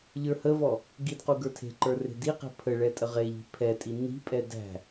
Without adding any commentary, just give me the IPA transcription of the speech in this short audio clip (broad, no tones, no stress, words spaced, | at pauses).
ʎə˞həvɔ | ɡidqu ɡə˞tʰe̤ǃə˞ re̤diqe̤ pʰəɭɛ tʼəʁeʎi̤ pʰɛtʼi ni̤pʼɛ dæ̤